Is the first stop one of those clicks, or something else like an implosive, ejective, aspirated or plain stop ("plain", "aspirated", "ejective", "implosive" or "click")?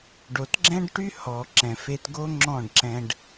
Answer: plain